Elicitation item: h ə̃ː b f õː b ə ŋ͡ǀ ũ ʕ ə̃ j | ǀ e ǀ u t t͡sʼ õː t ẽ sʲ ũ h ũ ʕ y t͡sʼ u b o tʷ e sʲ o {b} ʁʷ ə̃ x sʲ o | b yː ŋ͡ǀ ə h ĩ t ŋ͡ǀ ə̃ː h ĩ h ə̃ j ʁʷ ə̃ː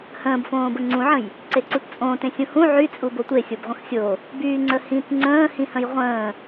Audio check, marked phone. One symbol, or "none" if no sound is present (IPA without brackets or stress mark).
b